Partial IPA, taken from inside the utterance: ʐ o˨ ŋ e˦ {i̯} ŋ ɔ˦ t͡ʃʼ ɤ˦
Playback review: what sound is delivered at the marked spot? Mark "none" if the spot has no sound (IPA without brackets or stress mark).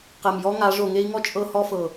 i̯